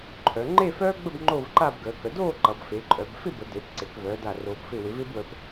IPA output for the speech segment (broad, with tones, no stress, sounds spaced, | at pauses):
ǃʰ œ˩˧ ŋ͡ǃ e˥˧ f œː˥ ɡ͡b ə˥˧ b ŋ͡ǃ oː˥˧ v ǃ a˥˧ b ɡ əː˩˧ k ə˩˧ d oː˥˧ ǃ ʌ˩˧ b f e˩˧ ǃʼ œ˩˧ b f ɪ˥˧ b ə˩˧ d e˩˧ p ǀ e˩˧ k v œː˩˧ d a˧˩ r oː˧ p f ɪ˥˧ w ɪ˩˧ v ɪː˥ b w ə˧ p